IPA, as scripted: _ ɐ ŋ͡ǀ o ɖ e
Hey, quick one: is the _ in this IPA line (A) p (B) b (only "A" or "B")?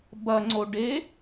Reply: B